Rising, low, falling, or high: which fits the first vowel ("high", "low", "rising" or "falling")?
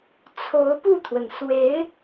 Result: rising